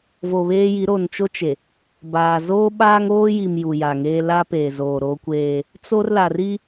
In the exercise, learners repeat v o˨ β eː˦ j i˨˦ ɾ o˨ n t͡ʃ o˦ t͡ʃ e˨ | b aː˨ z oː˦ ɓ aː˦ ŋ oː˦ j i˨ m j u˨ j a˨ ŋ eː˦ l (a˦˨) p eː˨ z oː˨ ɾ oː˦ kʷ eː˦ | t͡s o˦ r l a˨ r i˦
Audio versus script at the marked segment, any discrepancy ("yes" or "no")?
yes